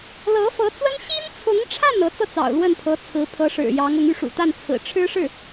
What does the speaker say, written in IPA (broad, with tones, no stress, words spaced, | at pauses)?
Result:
lɤ˧˥fɤ˧˥t͡swə˥n ɕi˥nt͡sʰʊ˧˥ŋʈ͡ʂʰa˥˩n ɤ˧˥t͡sɤ˥˩t͡sɑ̰˨˩ʊ̯ lwə˥˩npʰɤ˧˥ t͡sʰɹ̩˧˥pʰɤ˧˥ʂɻ̩˨˩jɑ˧˥ŋ ʊ˧˥ŋ y˥˩ʂṵ˨˩t̪a˥˩n t͡sʰɹ̩˨˩ʈ͡ʂʰɻ̩˥ ʂɻ̩˥˩